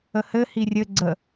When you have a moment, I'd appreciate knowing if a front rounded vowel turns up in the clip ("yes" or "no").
no